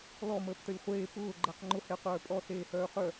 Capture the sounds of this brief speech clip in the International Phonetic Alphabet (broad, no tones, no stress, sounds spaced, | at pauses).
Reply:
l ɔ m əː p t ə lʲ χʷ eː p ʊː ɡ͡ǃ əː q ŋ͡ǃ ʊ h e qʷ œː pʼ ɔ s eː h œː χ œ